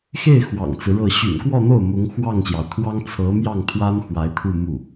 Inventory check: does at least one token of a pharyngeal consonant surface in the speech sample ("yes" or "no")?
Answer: no